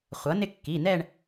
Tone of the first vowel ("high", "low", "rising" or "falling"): rising